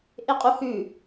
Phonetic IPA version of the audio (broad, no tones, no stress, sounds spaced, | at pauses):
ʔ e qʼ u h ʉ